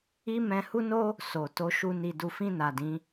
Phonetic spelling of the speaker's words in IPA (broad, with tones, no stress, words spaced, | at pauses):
i˦mɛ̃˧hu˦no˦ | so˨to˧ʃu˧ ni˨du˨fĩ˧ na˨dĩ˨˦